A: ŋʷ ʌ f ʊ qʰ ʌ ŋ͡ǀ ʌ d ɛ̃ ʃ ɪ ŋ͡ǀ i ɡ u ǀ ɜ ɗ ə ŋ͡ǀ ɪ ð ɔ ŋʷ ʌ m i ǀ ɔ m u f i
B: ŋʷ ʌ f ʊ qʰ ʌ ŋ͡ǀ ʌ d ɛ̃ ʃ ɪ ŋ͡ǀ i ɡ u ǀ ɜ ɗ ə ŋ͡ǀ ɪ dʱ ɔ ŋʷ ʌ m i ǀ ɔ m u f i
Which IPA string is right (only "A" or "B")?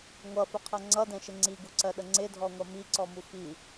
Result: B